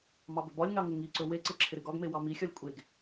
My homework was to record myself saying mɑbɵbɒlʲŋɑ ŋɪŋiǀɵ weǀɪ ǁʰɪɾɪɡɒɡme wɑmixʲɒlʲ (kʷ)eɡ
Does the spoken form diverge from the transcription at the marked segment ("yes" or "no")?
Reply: yes